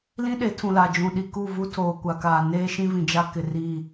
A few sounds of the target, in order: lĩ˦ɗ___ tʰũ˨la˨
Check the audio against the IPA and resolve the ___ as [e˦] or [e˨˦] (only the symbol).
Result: e˨˦